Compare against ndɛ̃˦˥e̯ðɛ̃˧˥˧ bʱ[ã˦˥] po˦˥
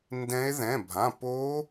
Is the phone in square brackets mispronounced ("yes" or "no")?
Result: yes